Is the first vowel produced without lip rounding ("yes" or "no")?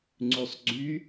no